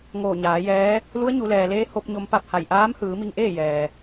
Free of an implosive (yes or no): yes